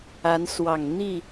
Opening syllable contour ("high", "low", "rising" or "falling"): rising